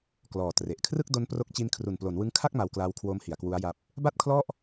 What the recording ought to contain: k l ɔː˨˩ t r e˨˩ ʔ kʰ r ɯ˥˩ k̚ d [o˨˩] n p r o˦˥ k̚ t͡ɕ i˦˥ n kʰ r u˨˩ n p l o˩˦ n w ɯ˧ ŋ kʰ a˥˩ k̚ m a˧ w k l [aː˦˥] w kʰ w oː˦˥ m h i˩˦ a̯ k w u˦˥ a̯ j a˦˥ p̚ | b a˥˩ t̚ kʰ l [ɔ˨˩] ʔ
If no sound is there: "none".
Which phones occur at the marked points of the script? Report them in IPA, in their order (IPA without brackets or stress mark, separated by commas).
o˦˥, aː˦˥, ɔ˥˩